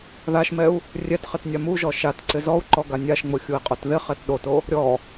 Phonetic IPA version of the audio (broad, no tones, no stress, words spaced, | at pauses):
ðaʃmɛu̯ | rʲɛtχɪt nʲamuʒɔ ʃat ǀɪzɔu̯ǃɔ ɡanʲaʃŋ͡mʊ xʲui̯qʼotðɪχɛt ɗoto | ɾʲɔ